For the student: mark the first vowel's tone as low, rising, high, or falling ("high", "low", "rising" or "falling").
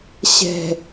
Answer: low